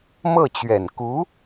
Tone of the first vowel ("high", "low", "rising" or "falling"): falling